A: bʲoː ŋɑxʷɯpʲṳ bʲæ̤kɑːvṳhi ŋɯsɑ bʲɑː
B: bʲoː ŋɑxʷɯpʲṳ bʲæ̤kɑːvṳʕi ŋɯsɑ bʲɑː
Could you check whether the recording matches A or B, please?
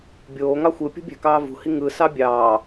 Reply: A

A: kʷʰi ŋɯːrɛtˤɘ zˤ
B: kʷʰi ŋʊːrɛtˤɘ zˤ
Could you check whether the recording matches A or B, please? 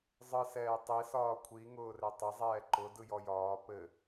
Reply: B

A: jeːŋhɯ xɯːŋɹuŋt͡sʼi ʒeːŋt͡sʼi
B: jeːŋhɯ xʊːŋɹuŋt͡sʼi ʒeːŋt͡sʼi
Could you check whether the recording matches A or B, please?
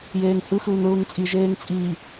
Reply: A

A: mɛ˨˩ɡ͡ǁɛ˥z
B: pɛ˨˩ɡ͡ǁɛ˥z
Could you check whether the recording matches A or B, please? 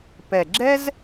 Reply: B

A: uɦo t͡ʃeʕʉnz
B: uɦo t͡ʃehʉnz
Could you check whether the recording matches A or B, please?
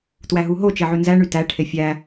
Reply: A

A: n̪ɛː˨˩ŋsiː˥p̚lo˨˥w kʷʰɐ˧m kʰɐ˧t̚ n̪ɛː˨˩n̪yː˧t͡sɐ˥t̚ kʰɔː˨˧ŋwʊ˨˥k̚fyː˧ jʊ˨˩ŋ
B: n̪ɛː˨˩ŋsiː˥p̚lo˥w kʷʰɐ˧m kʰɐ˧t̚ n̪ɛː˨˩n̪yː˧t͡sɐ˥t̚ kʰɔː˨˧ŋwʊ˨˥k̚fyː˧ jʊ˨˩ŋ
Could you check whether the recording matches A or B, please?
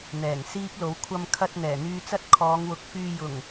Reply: A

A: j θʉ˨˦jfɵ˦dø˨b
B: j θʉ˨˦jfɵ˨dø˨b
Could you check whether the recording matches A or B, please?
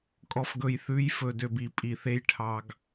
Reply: B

